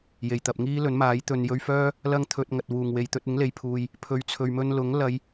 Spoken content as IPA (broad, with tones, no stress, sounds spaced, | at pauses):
j e˨˩ j t̪ ɐ˨ p̚ ŋ iː˥ l ɵ˨˥ n m aː˨˥ j t̪ ɵ˨ n j ɵ˧ ɥ f œː˥ | l ɐ˧ ŋ t̪ʰ ɵ˨ t̚ ŋ ɐ˨ t̚ w uː˨˩ ŋ w e˨ j t̪ ɵ˧ t̚ ɪ˨˥ ŋ l e˨ j pʰ uː˨ j | pʰ ɵ˨ ɥ t͡sʰ ɵ˨ ɥ m ɵ˧ n l ʊ˨˥ ŋ l ɐ˨˧ j